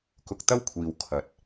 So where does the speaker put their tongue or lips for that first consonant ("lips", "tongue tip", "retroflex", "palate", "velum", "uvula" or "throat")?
velum